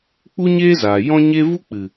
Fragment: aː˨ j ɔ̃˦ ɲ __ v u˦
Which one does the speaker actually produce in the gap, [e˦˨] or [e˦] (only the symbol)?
e˦